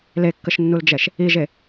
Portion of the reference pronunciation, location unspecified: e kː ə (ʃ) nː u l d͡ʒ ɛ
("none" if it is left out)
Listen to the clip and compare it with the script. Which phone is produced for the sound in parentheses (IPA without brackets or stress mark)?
ʃ